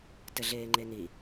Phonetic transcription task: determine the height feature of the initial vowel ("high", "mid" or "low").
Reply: mid